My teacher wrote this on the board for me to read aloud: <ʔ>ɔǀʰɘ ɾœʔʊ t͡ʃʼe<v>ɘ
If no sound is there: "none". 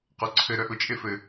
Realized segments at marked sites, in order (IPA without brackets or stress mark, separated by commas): q, f